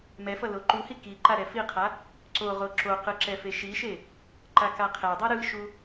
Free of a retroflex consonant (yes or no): yes